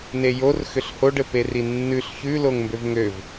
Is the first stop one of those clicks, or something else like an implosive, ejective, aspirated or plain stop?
plain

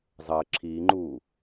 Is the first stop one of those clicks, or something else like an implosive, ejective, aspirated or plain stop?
click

